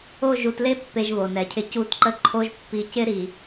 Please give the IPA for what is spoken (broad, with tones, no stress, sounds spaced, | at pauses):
o˦˨ ʒ u˨ t l e˦ pː e˦ ʒ β o˨ n ɛ˨ cʰ ɪ˦ c u˦˨ t ǃ ə˦ ǃʰ o˦ ʒ pː i˨ c ɪ˦ ɾ i˨